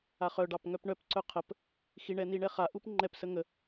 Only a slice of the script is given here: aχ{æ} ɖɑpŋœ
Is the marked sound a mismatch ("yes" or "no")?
yes